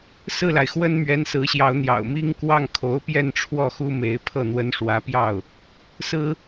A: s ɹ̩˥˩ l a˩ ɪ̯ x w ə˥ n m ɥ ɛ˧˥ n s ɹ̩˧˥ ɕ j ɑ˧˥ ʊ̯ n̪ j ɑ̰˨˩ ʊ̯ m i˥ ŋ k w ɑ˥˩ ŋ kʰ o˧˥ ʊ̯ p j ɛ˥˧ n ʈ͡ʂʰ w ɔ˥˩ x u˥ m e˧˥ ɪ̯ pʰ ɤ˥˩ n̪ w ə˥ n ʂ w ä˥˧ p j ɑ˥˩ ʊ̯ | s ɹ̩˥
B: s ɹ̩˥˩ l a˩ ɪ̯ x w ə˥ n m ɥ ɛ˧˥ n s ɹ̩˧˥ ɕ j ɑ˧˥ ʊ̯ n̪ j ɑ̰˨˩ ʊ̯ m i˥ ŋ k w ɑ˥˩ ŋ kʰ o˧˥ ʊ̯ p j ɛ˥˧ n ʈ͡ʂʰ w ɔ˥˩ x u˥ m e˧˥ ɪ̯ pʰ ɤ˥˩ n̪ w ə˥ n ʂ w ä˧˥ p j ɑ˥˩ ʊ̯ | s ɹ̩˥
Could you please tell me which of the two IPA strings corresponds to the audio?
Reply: B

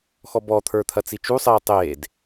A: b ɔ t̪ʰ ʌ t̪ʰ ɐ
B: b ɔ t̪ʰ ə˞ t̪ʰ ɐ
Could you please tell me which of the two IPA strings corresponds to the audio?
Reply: B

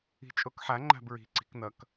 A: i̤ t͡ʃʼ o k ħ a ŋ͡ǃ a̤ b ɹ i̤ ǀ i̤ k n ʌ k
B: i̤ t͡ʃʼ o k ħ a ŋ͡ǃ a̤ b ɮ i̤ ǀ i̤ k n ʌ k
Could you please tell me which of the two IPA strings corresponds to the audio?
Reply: A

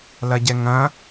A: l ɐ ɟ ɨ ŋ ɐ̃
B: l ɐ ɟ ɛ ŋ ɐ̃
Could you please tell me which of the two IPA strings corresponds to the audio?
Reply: B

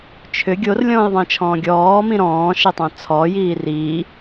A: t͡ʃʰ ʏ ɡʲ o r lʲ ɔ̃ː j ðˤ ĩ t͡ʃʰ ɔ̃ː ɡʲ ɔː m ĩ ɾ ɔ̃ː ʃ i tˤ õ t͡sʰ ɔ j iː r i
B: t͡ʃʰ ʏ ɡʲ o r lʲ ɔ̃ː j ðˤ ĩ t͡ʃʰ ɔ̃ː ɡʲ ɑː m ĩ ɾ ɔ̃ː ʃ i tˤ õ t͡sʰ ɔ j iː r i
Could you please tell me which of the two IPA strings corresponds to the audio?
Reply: A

